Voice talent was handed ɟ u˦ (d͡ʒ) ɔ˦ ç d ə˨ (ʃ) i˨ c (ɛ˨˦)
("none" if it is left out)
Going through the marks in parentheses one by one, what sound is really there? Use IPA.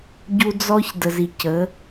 d͡z, z, ə˨˦

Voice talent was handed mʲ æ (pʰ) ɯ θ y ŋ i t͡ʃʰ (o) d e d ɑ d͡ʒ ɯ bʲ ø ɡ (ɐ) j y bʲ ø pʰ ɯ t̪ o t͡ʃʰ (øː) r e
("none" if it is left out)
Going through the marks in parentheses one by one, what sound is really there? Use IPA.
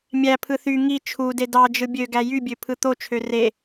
pʰ, u, æ, ø

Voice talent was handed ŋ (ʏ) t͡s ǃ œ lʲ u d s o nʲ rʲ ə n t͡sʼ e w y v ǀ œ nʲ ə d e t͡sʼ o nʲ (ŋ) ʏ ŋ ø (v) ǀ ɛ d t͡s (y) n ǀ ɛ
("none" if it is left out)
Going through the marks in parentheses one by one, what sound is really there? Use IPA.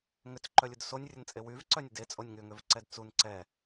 ʏ, ŋ, v, u

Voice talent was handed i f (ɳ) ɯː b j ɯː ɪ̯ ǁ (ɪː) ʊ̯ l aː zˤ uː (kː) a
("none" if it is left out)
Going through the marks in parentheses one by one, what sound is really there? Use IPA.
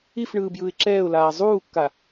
ɳ, ɛː, kː

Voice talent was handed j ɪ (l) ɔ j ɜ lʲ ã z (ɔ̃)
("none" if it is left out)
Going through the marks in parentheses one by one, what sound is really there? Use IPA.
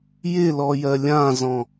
l, ɔ̃

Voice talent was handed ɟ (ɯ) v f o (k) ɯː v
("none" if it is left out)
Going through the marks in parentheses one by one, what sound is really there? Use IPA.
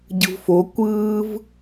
ɯ, kʷ

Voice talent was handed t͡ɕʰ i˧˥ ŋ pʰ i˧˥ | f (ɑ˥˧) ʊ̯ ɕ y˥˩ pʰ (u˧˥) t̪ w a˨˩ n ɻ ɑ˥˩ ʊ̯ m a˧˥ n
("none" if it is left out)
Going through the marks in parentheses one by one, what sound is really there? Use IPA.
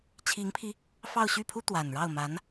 ɑ˥˧, u˥

